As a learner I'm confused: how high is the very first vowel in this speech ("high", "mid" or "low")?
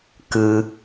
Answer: high